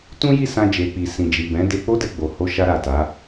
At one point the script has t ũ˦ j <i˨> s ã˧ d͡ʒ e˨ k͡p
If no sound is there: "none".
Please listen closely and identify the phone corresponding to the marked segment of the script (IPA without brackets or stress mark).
i˦˨